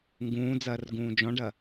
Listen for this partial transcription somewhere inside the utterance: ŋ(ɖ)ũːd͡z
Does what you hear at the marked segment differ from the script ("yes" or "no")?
yes